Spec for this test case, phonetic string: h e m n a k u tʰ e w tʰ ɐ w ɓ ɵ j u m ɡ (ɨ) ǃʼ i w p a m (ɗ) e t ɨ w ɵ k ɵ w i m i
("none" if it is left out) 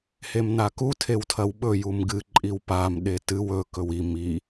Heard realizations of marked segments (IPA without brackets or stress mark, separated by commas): ɨ, ɗ